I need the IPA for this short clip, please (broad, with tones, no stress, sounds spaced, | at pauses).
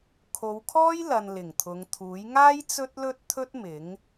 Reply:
kʰ o˨˧ w kʰ ɔː˥ j l ɐ˨ n l ɪ˨˩ ŋ t̪ʰ ʊ˨˧ ŋ t̪ʰ uː˨˥ j ŋ aː˥ j t͡s ɵ˥ t̚ l ɵ˥ t̚ t̪ʰ ɵ˥ t̚ m ɪ˨˥ ŋ